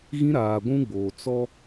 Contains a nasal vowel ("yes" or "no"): yes